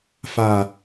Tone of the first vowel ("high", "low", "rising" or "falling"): low